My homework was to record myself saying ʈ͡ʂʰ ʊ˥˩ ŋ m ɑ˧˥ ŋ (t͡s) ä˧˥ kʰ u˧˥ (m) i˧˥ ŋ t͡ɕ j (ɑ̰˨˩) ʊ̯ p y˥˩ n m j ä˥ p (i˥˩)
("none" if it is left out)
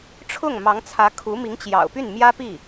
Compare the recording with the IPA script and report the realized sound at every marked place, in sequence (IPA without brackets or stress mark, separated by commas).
t͡sʰ, m, ɑ̰˨˩, i˥˩